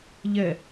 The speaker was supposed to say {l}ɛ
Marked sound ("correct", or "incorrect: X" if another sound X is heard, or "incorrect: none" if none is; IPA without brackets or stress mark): incorrect: ʎ